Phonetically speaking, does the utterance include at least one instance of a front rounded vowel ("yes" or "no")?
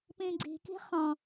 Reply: no